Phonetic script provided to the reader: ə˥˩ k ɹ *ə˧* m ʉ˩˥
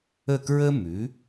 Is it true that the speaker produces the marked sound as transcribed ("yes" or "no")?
no